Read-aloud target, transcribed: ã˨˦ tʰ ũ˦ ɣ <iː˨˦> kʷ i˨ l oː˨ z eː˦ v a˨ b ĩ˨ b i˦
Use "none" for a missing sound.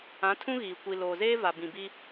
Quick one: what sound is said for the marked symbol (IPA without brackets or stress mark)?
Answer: iː˨